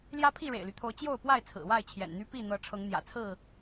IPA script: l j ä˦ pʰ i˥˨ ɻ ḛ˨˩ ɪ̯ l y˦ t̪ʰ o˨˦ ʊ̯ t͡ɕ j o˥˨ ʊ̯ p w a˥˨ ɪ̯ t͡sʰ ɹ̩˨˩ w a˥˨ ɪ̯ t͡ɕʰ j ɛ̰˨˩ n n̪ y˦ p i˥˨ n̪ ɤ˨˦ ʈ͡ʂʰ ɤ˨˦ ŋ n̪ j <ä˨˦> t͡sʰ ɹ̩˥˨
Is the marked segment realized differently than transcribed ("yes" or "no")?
yes